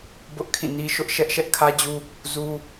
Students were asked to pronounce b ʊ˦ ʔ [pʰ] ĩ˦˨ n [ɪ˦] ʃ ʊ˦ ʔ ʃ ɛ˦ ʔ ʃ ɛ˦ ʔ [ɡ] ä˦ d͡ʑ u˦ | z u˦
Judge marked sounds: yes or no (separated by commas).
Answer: no, no, no